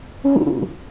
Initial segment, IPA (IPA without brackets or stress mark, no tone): ɣ